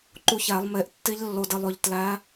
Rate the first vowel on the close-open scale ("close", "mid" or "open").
close